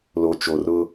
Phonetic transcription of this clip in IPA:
l o˨ t͡ʃ o˨ r ʊ˦

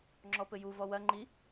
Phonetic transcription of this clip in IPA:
ŋ͡ǁ ɔ p ɘ j u v ɔ w ɐ ŋ͡ǃ i

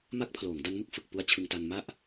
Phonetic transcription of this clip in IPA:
m a˦˥ k̚ pʰ l oː˩˦ ŋ d a˦˥ n m ɯ˥˩ k̚ f ɯ˨˩ k̚ p u˦˥ a̯ t͡ɕʰ ɯ˧ ŋ t a˧ n m a˥˩ ʔ

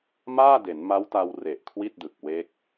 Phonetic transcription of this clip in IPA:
m aː˥˩ d e˩˦ n m a˦˥ w t a˧ w r e˨˩ ʔ kʰ w i˥˩ t̚ d ɯ˨˩ k̚ w e˦˥ k̚

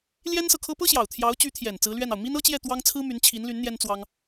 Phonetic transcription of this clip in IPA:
l j ɛ˥ n s ɤ˨ kʰ ɤ˥ p ɤ˥ ɕ j ɑ˨˩ ʊ̯ t̪ʰ j ɑ˧˥ ʊ̯ t͡ɕ y˧˥ t̪ʰ j ɛ˨˩ n t͡s ɹ̩˧˥ l ɥ ɛ˥˩ n ɑ˩ ʊ̯ m i˥ n ɤ˥ t͡ɕ j ɛ˥˩ t̪ w ɑ˥ ŋ t͡sʰ ɹ̩˥ m y˧˥ n t͡ɕʰ i˧˥ n l y˧˥ n n̪ j ɛ˥ n t͡s w ɑ˥ ŋ

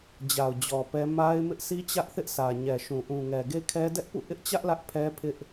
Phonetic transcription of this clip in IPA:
d͡ʑ a˨ ʊ̯ d͡ʑ ɔ˨ p ɛ˦ m a˦ ɪ̯ m ɪ˦ ʔ sʰ i˦ t͡ɕ ä˦ ʔ θ ɪ˦ ʔ sʰ ä˨ ɲ ɛ˨ ʃ ũ˨ ʔ ũ˨ ŋ ɛ˨ ɡ e˦ kʰ ɛ˦ d ɛ˦ ʔ p ṵ˦˨ ʔ ɪ˦ ʔ t͡ɕ ä˦ ʔ l ä˦ ʔ pʰ ɛ˦ pʰ ɪ˦ ʔ

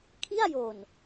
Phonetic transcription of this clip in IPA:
kʰ i˥˩ a̯ j o˨˩ n

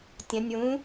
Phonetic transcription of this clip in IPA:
tʲ ɐ̃ nʲ w ũ

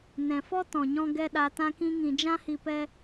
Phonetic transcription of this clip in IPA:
n ɛ̃˨ f ɔ˦ t ɔ̃˨ ɲ ɔ̃˧ ɡ ɛ˧ ɗ a˧ t ã˦ k ĩ˦ ŋ ĩ˧ d͡ʒ ã˦ h i˧ p ɛ˦

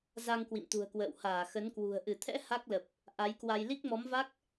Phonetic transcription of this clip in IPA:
z a˧ ŋ k w ḭ˧˨ m t̪ ṳ˨˩ ə̯ k w ə̰ː˧˨ w h aː˧˩ x ə˨˦ n k w ṳ˨˩ ə̯ ʔ ɨ˧˩ t̪ʰ ɛ̰˧˥ h a˦˥ k̚ l ə˨˩ p̚ | ʔ a˨˦ j k w a˧ j l i˦˥ k̚ m ɔ˨˦ m v a˦˥ k̚

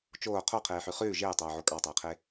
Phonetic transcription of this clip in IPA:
t͡ʃ oː qʰ o qʰ eː ħ ʉ χ ʉː ʒ eː tˤ oː ʕ o kʼ ɑ tˤ eː qʰ e

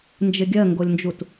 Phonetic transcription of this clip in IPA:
n d͡ʒ ɪ ɡʲ ɜ ŋ ɡ o lʲ n d͡ʒ u t

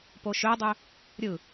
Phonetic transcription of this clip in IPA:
p o ʃ ø dˤ ø | ɾʲ ɯ

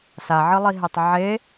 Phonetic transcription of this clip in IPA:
s a ʕ ɨ lˠ i ɦ e tˤ ʕ e

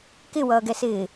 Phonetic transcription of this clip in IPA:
k ɪ w ʌː ɡ ɛ s ɪː

